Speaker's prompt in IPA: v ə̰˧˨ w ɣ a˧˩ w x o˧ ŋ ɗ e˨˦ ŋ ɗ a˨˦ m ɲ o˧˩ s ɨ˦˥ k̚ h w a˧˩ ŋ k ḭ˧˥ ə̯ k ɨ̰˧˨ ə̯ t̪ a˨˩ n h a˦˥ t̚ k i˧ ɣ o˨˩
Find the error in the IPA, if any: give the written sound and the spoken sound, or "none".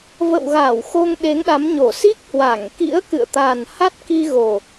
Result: ɨ˦˥ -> i˦˥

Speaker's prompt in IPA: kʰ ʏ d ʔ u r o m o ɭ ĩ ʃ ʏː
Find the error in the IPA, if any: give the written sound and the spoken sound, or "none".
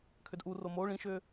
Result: none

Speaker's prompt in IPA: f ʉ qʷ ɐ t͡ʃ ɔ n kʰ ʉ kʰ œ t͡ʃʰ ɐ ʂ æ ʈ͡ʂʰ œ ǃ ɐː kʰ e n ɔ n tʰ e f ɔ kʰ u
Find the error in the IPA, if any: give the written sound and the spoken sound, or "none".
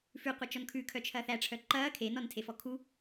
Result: ʂ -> θ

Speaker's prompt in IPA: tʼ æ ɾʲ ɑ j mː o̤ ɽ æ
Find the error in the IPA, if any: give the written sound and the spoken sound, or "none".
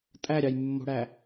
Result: none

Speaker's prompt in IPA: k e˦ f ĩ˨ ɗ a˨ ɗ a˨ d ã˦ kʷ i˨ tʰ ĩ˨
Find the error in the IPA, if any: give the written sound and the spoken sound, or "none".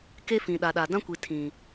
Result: none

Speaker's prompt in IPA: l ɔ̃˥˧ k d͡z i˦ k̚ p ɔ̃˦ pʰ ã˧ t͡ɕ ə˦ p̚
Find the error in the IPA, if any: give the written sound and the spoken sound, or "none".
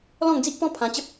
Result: k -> ŋ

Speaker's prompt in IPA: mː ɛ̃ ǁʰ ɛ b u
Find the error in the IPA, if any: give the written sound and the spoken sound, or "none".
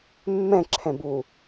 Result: ɛ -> ɛ̃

